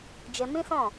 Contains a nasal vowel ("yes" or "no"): yes